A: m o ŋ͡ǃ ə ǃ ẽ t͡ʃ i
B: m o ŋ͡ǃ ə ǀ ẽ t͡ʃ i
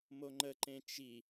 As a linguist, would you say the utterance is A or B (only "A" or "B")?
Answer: A